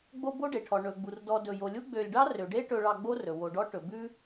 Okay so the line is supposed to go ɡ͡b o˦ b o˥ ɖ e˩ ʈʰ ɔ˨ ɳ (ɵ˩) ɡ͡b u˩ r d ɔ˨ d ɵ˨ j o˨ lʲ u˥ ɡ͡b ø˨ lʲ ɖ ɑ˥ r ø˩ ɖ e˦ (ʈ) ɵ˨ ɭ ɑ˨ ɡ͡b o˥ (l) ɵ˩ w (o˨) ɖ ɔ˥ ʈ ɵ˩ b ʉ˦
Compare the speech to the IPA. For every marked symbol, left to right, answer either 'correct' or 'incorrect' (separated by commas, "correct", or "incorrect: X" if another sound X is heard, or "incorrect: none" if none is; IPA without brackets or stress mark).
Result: correct, correct, incorrect: r, correct